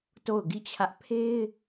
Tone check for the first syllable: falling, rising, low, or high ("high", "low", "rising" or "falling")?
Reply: falling